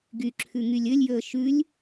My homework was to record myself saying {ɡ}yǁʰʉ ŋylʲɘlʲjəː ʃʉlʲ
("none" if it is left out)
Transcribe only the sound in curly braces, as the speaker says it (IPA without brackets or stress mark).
ɡ